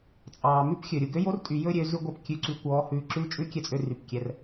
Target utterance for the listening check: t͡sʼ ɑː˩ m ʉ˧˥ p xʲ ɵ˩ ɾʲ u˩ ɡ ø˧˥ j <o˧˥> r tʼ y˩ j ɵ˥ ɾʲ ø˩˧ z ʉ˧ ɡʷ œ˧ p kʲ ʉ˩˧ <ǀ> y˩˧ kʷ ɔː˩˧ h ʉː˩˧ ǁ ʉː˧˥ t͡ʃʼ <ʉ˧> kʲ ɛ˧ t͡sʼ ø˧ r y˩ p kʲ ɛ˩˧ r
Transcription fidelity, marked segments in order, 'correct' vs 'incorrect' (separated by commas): correct, correct, incorrect